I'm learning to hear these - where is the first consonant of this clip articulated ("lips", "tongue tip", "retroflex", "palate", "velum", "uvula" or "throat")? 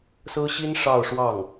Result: tongue tip